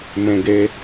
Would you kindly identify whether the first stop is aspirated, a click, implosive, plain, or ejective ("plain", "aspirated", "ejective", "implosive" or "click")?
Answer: plain